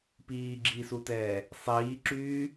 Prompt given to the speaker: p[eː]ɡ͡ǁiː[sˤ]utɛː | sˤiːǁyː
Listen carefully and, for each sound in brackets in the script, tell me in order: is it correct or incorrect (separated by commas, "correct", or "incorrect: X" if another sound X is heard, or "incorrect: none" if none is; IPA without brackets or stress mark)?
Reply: incorrect: iː, incorrect: s